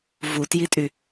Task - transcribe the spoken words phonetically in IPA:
v u t j i tʼ y

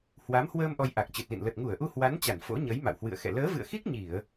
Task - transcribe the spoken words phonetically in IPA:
h w a˨˦ m h w əː˧ m ʔ ɔ˧ j ʔ a˨˩ k̚ t͡ɕ ɨ˨˩ t̚ l ḭ˧˨ n l ə˨˩ t̚ ŋ u˧˩ ə̯ ʔ u˧ h w a˨˦ n t͡ɕ a˧˩ n f o̰˧˥ ɲ ə˨˦ j m a̰˧˨ w h w ɨ̰˧˨ ə̯ x ɛ̰˧˨ l əː˨˦ v ɨ̰˧˨ ə̯ x i˦˥ k̚ ɲ i˧˩˨ ə̯

